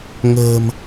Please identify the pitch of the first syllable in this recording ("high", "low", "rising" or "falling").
low